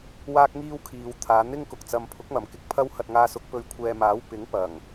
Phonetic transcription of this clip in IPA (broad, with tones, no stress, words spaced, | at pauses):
waː˥k̚ŋiː˥wkʰiː˨˧w t̪ʰaː˨˧n̪ɪ˥ŋkʊ˨k̚t͡sɐ˧m pʰʊ˨˥k̚mɐ˨˩mkɪ˨˥k̚ pʰɐ˧whɐ˨t̚ ŋaː˧sʊ˨˥k̚ pɵ˨˧ɥkʷʰɛː˨maː˨˥w pɪ˨˥ŋpɐ˨˩ŋ